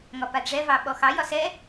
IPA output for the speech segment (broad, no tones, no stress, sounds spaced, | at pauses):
ŋ ɒ p a d ʐ ɛ v ɑ ɓ ɔ x ɑ j ɒ s ɛ